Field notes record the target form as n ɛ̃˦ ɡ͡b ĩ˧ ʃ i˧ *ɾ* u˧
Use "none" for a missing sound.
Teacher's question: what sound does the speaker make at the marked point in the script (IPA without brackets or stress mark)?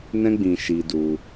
d